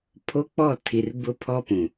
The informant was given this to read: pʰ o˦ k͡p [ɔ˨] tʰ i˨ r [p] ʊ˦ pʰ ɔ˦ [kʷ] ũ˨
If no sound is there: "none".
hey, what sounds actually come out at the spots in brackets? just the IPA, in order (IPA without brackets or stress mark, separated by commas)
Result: ɔ˦˨, b, p